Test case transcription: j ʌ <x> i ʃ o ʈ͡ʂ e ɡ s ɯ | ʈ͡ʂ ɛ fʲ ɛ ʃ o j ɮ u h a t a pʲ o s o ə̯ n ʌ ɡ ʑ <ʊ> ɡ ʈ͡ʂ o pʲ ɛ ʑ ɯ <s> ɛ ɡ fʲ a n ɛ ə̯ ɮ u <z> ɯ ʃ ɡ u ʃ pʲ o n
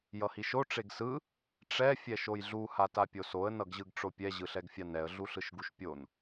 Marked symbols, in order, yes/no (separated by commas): no, no, no, no